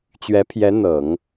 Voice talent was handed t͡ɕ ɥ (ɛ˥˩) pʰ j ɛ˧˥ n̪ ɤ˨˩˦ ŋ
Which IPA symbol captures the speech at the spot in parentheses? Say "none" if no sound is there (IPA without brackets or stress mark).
ɛ˧˥